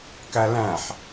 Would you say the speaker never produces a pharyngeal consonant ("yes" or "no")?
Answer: no